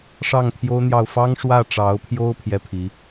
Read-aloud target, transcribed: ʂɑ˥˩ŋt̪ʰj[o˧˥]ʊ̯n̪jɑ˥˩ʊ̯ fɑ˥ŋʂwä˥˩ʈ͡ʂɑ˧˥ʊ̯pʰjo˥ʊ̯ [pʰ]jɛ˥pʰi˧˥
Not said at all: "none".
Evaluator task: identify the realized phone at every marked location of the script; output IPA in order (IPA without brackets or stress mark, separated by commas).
o˥, pʰ